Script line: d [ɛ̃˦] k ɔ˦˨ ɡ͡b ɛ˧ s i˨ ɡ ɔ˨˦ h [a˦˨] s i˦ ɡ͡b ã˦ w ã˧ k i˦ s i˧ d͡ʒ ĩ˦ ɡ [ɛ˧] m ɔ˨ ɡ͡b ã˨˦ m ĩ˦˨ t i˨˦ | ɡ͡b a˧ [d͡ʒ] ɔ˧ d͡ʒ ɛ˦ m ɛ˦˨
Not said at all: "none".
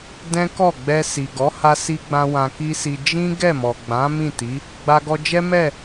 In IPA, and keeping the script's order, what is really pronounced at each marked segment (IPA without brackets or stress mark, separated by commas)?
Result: ɛ̃˦, a˧, ɛ˦˨, ɡ